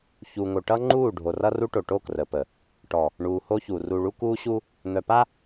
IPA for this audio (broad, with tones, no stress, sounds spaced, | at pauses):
ç u˨ ŋ o˨ ʈ ʌ˦ ŋ͡ǃ uː˦˨ ɖʱ o˨ r ʌ˦ r u˦ ʈ o˨ ʈ o˦˨ k r ə˨ p ə˨ | ʈ ɔ˨ | ɳ uː˨ h o˦ ç u˨ r u˨ ɭ u˦ k uː˦ ɕ u˦ | n̪ œ˨ p a˦